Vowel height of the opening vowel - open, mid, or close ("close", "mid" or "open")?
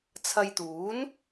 open